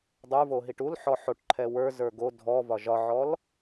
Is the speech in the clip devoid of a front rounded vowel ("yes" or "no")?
yes